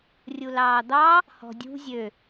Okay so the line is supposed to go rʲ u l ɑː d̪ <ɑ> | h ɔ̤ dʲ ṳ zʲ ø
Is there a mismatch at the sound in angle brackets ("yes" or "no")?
no